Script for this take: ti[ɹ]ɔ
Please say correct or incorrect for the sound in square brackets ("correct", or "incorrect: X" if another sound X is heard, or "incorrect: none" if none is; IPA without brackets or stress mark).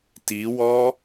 incorrect: w